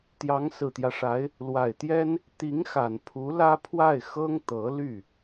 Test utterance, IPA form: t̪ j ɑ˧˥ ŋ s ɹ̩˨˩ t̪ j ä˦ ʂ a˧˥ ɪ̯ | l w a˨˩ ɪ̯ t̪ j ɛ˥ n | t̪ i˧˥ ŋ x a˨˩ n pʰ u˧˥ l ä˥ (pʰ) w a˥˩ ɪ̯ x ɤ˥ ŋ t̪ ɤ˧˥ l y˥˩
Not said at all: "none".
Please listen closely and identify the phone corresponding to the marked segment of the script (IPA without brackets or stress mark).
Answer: pʰ